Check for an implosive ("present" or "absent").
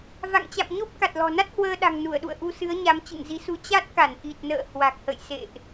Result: present